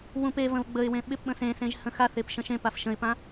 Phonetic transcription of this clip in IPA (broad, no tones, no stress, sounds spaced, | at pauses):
w ũ p e v ə̃ v ɡ͡b ə ɪ̯ w ẽ ɓ ɪ p ɓ ə̃ s ẽ s ẽ ʒ h ə̃ x a θ e p ʃ ə̃ ʃ ẽ p a f ʃ ə̃ ɪ̯ p ã